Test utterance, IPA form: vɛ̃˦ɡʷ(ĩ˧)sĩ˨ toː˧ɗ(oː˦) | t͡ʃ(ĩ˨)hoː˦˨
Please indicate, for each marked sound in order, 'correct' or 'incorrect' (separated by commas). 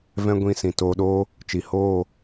correct, correct, incorrect